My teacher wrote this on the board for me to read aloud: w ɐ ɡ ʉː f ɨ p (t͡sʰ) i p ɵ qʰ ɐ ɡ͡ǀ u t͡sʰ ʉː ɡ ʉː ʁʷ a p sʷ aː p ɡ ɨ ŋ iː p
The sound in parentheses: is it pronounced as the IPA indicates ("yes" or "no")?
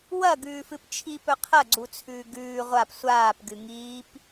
no